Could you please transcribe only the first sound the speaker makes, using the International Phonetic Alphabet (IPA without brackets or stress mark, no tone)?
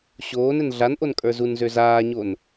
ɕ